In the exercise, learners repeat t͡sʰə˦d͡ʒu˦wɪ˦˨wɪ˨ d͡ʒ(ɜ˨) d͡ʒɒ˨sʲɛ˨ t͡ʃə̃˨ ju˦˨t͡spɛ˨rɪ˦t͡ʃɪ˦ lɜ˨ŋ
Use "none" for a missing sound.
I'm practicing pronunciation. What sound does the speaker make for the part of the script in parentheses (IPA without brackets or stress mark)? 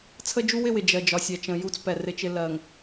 ɜ˨